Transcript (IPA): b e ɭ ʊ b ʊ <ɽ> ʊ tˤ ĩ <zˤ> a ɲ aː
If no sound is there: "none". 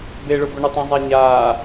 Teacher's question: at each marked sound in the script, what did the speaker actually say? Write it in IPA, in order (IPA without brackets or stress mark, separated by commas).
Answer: ɳ, zˤ